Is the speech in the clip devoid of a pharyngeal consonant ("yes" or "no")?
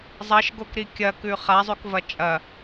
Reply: yes